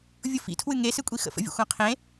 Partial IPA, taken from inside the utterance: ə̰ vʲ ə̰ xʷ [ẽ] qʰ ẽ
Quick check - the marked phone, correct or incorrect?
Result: incorrect